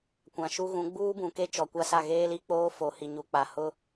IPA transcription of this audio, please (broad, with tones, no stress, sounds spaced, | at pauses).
kʷ ã˨ ʃ u˦ ɣ ũ˨˦ ɡ͡b uː˦ b ũ˨ k e˦ t͡ʃ ɔ˨ kʷ a˦ s a˦˨ ɣ eː˦ l i˦ k͡p oː˦ f o˨ h i˨ ɲ u˨ k͡p a˨ h ʊ˦